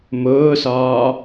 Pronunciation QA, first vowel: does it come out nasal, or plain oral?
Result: oral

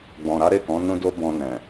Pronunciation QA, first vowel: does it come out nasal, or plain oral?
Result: nasal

